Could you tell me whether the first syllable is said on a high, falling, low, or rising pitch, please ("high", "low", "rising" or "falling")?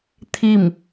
falling